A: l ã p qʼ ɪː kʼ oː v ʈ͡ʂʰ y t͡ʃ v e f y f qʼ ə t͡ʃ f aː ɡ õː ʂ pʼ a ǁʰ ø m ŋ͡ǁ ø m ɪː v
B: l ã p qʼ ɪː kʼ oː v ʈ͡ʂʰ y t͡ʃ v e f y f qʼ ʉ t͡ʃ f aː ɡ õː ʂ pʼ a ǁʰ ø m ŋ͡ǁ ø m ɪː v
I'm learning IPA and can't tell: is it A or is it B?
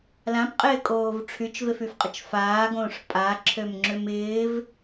A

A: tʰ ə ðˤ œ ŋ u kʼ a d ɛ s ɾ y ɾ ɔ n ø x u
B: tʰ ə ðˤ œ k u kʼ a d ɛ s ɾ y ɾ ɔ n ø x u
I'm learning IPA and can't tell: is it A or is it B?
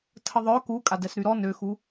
B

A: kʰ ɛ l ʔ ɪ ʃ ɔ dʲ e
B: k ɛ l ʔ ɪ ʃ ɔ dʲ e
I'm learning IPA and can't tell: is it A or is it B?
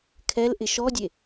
A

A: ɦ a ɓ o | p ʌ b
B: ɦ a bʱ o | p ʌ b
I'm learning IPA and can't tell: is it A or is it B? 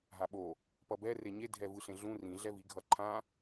A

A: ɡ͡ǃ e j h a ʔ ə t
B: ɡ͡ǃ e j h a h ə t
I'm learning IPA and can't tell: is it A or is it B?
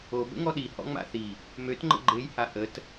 A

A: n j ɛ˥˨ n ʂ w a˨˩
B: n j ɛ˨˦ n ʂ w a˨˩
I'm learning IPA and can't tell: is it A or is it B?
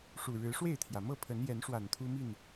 B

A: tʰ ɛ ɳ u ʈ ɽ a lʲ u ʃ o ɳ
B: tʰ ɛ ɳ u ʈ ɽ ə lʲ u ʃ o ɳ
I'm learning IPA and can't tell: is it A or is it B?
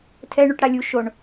A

